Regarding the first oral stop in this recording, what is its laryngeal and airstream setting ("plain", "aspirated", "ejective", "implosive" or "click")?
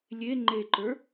click